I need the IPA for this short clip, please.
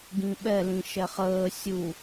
ɡ ĩ ɓ ɛ l ĩ ʃ ɛ χ əː sʲ u

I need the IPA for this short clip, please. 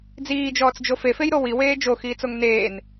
d͡z iː d͡ʒ ɔː t͡s d͡ʒ o f e f e j ɾ o w i w eː d͡ʒ o x iː t͡s o ŋ n eː n

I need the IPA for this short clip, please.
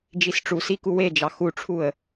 d͡ʒ i s ʈ͡ʂ u s i k u w e d͡ʒ ɑ x u ʈ͡ʂʰ u ə̯

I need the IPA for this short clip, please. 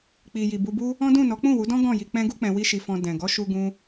k͡p i˨ j i˨ b u˧ b u˦ | ɔ̃˦ d ũ˦˨ n ɔ˨˦ k͡p ũ˦˨ w u˨˦ d ɔ̃˦ ɡ ɔ̃˦˨ j i˧ k͡p ɛ̃˦ ɡ u˦ k͡p ɛ̃˧ w i˦ ʃ i˧ f ɔ̃˧ d ɛ̃˨ ɡ ɔ˨˦ ʃ u˧ ɡ ũ˧

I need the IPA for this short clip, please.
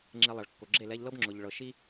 ŋ͡ǁ e˧ lˠ ɐ˨ ɭ kː o˨ ɡ͡ǁ e˦˨ l ɛ˧ ʎ l ɤ˦ b ŋ͡ǁ ʊ˨ ʎ ɭ ɤ˨ ʃ i˦

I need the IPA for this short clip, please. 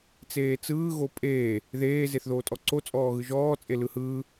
t͡s eː t͡s ɯː ɣ o pʼ eː | ð eː z e θ ð oː tʼ ɔ ǀ o t͡sʼ ɔː ɣ ɯ ʒ ɔː t͡sʼ e l ɯ h ɯː

